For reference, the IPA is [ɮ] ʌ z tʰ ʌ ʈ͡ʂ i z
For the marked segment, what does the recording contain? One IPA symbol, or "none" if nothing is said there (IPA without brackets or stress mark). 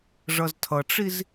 ʐ